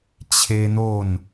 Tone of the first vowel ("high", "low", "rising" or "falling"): high